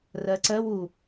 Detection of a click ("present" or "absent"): present